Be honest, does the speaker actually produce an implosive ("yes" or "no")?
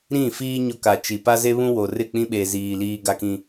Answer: yes